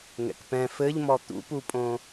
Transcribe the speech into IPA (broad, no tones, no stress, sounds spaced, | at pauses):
ŋ ɛ̰ k p ɛ̃ f ɘ ʎ m ɔ t̪ ṵ p u pʼ õ